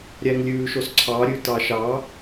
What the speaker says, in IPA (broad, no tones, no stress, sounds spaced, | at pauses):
ɾʲ æ ŋ lʲ ʉː ʃ o s ǀʰ ɑ ɾʲ ʉ t ɑ ʃ ɑ